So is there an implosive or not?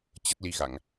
no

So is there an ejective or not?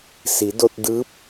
no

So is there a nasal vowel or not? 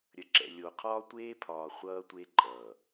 no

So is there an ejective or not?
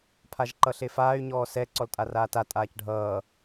yes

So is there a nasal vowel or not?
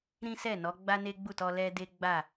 yes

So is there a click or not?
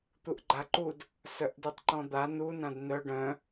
yes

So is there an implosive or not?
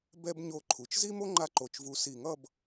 no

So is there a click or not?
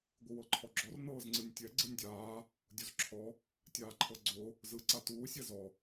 yes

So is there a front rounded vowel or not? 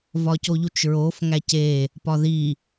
no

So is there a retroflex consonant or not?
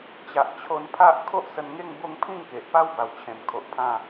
no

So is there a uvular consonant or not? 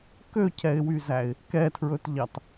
no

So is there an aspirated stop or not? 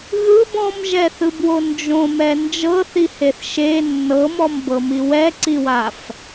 no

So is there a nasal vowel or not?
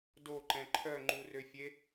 yes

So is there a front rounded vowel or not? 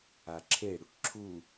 no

